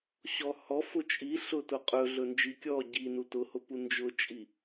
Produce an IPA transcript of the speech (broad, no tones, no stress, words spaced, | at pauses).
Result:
ɕɔhɔ fʊt͡ʃʼi ɬʊtʊqʼɵɮɵ nd͡ʒikʲɔ ɟinu tʊhʊpu nd͡ʒʊt͡ʃʼi